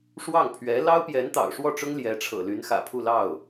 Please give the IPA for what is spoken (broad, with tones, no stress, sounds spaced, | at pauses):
ʂ w ɑ˥˩ ŋ pʰ ɥ ɛ˧˥ l ɑ˥ ʊ̯ p j ɛ˧˥ n t̪ ɑ̰˨˩ ʊ̯ ʂ w ɔ˥˩ ʈ͡ʂ ʊ˥ ŋ l j ɛ˧˥ ʈ͡ʂʰ ɤ̰˨˩ l y˧˥ n x ä̰˨˩ pʰ u˥˧ l ɑ˥˩ ʊ̯